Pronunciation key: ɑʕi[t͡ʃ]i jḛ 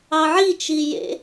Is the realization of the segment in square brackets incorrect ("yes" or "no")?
no